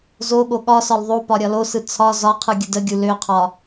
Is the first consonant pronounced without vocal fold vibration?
no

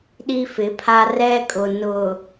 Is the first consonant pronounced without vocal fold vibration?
no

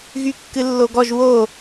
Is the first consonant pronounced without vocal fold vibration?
no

